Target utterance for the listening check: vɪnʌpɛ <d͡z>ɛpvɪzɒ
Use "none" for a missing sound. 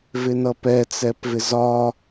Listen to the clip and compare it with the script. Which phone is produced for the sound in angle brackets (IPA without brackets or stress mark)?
t͡s